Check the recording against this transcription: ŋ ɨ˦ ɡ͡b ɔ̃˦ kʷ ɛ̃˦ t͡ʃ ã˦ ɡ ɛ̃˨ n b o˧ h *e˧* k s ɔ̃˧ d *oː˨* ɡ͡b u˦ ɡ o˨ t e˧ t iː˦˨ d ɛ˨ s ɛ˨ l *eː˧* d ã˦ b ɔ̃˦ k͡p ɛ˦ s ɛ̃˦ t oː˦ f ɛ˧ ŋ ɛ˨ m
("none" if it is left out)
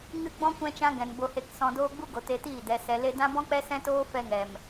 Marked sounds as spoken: e˧, oː˦, e˧

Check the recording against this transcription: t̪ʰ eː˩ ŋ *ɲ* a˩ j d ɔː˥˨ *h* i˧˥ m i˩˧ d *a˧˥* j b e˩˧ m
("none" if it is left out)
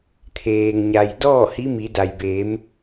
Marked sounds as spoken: ɲ, h, a˩

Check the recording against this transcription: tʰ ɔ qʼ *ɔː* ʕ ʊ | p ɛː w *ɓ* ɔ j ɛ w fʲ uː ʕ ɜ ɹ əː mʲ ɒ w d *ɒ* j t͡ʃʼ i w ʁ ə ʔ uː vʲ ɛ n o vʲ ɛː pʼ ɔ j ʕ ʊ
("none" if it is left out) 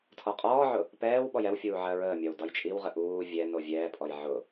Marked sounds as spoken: ɔː, ɓ, ɒ

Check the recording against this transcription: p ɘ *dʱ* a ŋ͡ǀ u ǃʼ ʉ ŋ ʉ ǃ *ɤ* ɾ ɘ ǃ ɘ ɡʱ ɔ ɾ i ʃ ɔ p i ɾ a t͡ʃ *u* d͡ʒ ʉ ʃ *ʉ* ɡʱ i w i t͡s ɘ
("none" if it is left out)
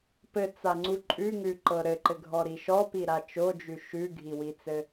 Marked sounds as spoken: t͡s, ɤ, o, ʉ

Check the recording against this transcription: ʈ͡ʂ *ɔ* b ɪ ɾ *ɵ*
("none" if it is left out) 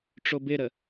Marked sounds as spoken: o, ə

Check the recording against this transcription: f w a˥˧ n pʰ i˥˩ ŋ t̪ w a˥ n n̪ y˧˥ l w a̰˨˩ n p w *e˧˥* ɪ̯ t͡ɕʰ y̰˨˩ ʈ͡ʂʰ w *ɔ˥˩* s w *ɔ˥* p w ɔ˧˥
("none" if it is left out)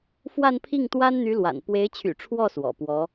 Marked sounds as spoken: e˧˥, ɔ˥˩, ɔ̰˨˩

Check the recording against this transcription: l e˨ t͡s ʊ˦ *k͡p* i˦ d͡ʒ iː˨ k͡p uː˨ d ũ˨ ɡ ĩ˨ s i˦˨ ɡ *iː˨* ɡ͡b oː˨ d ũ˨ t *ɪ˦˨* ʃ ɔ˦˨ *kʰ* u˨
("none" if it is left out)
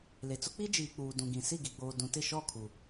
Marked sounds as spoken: k͡p, i˨, ɪ˦˨, kʰ

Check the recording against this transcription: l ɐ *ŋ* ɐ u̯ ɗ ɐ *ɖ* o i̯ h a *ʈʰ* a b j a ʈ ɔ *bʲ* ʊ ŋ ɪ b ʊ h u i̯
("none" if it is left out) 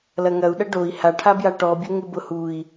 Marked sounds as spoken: ŋ, ɖ, ʈʰ, bʲ

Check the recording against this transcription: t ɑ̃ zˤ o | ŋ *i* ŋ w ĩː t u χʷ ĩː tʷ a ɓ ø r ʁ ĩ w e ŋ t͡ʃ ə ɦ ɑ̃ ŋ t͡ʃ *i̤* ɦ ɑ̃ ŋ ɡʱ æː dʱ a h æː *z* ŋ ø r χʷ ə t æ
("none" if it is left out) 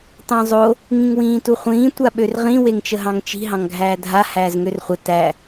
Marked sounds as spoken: ĩ, i̤, z

